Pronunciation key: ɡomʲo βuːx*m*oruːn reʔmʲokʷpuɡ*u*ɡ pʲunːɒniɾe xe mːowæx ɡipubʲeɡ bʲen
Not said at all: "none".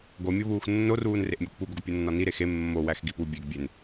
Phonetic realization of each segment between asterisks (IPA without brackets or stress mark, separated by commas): nː, o